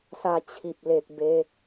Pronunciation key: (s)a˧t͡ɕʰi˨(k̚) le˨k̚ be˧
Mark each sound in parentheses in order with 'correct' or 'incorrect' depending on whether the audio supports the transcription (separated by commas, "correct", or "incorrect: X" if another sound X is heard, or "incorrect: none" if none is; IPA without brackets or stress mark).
correct, incorrect: p̚